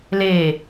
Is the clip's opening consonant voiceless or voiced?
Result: voiced